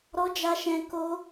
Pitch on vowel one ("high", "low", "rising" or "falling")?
high